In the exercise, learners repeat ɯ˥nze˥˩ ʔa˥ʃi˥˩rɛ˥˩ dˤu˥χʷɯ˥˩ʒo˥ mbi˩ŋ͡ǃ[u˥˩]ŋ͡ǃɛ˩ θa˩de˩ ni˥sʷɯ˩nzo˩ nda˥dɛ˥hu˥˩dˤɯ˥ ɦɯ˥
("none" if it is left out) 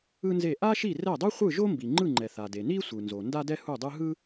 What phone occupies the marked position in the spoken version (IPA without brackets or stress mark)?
ɯ˥˩